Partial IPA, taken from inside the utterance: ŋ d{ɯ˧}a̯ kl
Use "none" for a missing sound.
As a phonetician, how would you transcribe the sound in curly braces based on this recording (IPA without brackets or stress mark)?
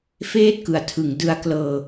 ɯ˦˥